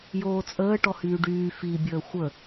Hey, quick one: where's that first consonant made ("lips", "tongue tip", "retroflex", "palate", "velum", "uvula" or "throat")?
palate